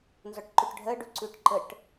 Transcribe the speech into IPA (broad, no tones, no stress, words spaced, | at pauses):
nzɔʈǃʉʈɖʱɜ ɖʉǀʉʈǃəʈ